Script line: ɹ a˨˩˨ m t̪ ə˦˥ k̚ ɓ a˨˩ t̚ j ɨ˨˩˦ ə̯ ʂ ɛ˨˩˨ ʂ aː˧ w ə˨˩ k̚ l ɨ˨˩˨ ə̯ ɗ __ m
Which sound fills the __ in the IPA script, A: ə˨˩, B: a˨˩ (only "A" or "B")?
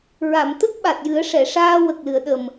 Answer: A